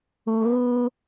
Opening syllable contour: low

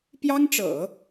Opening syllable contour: high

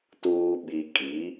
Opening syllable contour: low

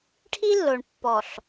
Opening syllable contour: high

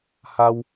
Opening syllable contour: high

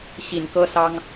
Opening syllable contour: low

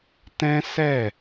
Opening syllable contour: high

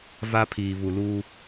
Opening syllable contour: high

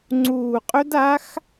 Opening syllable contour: low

